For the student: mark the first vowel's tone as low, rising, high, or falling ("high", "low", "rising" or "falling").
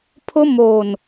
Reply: high